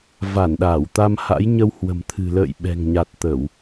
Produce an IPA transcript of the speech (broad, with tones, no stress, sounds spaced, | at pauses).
v a˧˩ n ɗ aː˧˩ w t̪ a˧ m h a̰˧˥ j ɲ ə˧ w h w ə̤˨˩ m t̪ʰ ɨ̤˨˩ l ə̰ː˧˨ j ɓ ɛ̤˨˩ ŋ ɲ a˨˩ t̚ t̪ ə˧˩˨ w